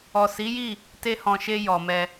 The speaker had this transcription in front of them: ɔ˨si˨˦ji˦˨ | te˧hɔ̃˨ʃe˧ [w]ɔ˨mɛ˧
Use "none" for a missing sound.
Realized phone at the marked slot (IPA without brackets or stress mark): j